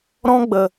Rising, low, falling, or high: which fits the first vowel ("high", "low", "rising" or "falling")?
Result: high